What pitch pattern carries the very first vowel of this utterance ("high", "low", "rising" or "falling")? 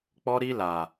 high